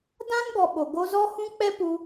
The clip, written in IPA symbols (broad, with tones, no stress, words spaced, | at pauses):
dã˦nɡɔ˨ ɓo˨ ɡo˧zɔ˦hũ˦ k͡pɛ˦pu˧